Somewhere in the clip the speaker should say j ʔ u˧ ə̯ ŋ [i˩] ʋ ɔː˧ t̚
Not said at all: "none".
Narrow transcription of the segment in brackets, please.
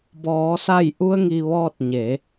i˩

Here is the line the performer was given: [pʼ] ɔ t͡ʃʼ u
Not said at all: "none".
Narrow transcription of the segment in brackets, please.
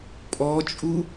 pʼ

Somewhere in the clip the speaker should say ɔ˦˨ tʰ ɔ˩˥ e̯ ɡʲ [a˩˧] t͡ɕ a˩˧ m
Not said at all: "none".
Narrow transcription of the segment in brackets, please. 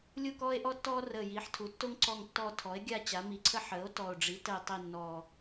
a˦˨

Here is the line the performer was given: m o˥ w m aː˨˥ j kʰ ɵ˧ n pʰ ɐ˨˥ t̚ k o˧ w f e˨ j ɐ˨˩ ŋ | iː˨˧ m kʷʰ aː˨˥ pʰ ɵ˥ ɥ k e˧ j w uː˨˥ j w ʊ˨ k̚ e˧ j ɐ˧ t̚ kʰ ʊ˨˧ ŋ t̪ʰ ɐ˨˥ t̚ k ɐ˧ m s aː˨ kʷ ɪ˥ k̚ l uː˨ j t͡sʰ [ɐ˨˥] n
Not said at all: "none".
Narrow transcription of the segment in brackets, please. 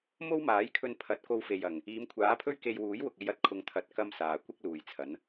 ɐ˨˥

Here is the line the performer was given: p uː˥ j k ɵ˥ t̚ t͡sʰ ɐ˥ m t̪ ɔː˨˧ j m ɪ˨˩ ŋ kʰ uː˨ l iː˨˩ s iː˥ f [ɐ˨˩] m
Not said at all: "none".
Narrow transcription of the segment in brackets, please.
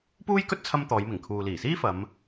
ɐ˨˧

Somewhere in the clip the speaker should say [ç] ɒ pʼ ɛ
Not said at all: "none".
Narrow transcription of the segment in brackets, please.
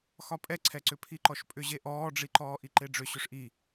x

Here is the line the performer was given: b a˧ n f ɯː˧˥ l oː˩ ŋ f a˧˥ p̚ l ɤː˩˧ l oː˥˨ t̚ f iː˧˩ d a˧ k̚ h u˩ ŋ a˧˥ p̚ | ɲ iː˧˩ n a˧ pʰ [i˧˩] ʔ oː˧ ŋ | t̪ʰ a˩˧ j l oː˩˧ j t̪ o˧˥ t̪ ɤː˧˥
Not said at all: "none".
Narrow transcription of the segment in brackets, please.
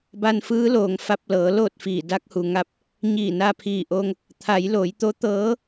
iː˧˩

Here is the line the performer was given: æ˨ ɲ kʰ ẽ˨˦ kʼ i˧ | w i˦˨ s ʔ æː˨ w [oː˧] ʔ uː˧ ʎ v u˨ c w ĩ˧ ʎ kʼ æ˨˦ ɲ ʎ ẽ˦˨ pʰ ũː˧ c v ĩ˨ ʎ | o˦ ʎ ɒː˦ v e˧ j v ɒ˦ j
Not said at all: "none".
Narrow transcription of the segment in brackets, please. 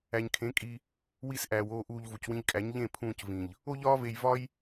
oː˧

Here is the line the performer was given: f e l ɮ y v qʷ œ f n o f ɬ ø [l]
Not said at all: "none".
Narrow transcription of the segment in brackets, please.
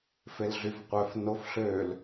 l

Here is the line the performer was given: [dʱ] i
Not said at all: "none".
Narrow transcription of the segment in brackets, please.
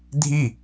dʱ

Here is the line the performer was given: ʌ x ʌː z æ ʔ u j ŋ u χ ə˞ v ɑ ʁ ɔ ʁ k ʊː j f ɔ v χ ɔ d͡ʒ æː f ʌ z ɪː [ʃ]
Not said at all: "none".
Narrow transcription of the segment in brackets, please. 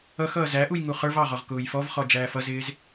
z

